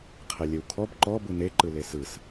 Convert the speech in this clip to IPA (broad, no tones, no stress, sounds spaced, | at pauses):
qʰ e lʲ e w kʰ ɔ b ǃ ɔ b ɯ n e ǃ ɯ l e s ɯ s